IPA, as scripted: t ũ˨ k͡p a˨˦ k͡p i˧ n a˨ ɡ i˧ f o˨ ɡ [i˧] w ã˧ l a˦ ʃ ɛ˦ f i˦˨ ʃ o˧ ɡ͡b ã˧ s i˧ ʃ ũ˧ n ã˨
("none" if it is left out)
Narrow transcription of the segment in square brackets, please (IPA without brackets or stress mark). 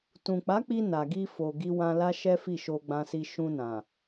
i˧